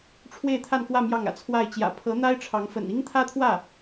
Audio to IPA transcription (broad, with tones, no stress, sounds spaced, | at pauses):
ʈ͡ʂʰ w e˥˧ ɪ̯ t̪ʰ a˥˧ n k w ä˥˧ m j ɑ˥˩ ŋ ä̰˨˩ t͡sʰ w a˥˩ ɪ̯ t͡ɕ j ä̰˨˩ pʰ ɤ˧˥ n̪ a˥ ɪ̯ ʈ͡ʂʰ ɑ˧˥ ŋ f ə̰˨˩ n i˥ ŋ t̪ʰ ä˥ t̪ʰ w ä˥˩